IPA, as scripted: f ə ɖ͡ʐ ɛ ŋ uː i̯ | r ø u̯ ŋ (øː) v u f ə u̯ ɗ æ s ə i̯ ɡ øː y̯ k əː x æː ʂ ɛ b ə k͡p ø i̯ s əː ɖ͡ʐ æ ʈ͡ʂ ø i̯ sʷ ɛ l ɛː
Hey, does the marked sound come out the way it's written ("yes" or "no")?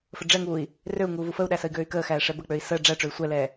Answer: no